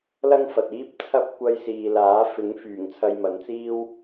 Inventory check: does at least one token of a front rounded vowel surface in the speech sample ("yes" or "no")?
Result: yes